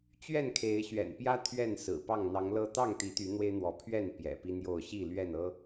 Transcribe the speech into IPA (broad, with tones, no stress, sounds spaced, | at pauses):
t͡ɕ ɥ ɛ˥˨ n kʰ e˨˦ ɪ̯ ɕ ɥ ɛ̰˨˩ n p j ä˦ t̪ʰ ɥ ɛ˥˨ n s ɹ̩˨˩ p ɑ˥˨ ŋ n̪ ɑ˨˦ ŋ l ɤ˦ t̪ ɑ˥˨ ŋ t̪ i˨˦ t̪ y˨˦ n̪ w e˦ ɪ̯ n̪ w ɔ˨˦ pʰ ɥ ɛ˥˨ n p j ɛ̰˨˩ p i˦ n̪ j o˥˨ ʊ̯ ɕ i˥˨ l ɥ ɛ˥˨ n ɤ˦